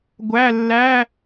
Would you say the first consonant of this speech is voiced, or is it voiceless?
voiced